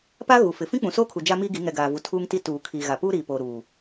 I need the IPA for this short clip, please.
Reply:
p a˦ ɣ u˨ f ɪ˨ f ĩ˦ k͡p ũ˨ s oː˦ kʰ u˨ d͡ʒ a˦ m iː˦ ɡ i˨˦ ŋ ɛ˨ ɡ aː˨ v u˨ tʰ uː˦ ŋ t i˦ t uː˨ kʰ iː˨ ɣ a˨ p uː˦ ɾ iː˨ p oː˨ ɾ uː˨

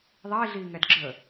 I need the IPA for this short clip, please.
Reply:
ðˤ iː ɮ iː ŋ ɛ d ɡ͡ǁ ə

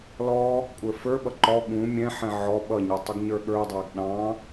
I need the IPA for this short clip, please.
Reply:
l ɔ | kʷʼ ə˞ f ə˞ ɓ ʌ ǃ ɔ ɠ ũ mʲ ɛ̃ ħ ɛ̃ ʕ ɔ ɓ ʌ ɲ ʌ tˤ u ɡ ɲ ə˞ ɠ ə˞ dˤ æ ɡ ɗ ɑ̃

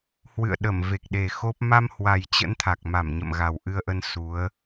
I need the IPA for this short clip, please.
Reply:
h w ɨ̰˧˨ ə̯ ɗ ə˧˩ m v e˨˩ k̚ ɗ e˨˩ x o˦˥ p̚ m a˧ m h w a˨˩ j t͡ɕ ə̰˧˥ n t̪ʰ a˨˩ k̚ m a˧˩ m ɲ ə̰˧˨ m ɣ a˨˩ w ʔ ɨ˧ ə̯ ʔ ə˧ n s u˨˦ ə̯

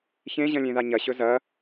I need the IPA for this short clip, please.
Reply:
ç ẽ ʑ ɐ̃ lʲ ẽ ð a ɲ ɐ ɕ ɵ z ɐ

